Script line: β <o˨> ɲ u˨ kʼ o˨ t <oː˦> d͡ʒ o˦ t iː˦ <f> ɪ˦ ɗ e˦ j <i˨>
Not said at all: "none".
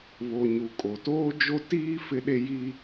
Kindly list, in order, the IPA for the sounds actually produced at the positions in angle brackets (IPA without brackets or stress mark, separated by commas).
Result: o˨, oː˦, f, i˦